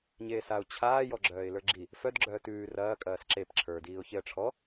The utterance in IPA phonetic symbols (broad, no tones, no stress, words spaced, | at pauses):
ɲeːsaʊ̯ t͡ɕʰaːjɔ ɡ͡ǁœːɪ̯lə˞ɡ͡ǁi | fœdɡ͡ǁœː tʉː rɐːkʼɐːs ǁep ǁʰə˞diːʊ̯çeə̯ ʈ͡ʂʰɔ